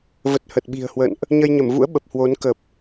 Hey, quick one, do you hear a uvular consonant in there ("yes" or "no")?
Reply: no